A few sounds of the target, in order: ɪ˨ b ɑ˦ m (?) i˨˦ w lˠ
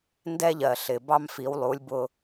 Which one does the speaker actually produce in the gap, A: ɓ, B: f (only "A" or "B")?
B